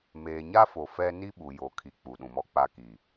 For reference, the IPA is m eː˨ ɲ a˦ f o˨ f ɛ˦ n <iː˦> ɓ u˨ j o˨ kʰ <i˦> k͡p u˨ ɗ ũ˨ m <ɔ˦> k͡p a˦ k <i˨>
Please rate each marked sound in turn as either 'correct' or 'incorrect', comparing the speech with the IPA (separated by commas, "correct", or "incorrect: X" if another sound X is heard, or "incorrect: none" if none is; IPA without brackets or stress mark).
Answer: incorrect: i˦, incorrect: i˨, correct, correct